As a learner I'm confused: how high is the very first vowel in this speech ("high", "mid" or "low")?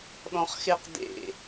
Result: mid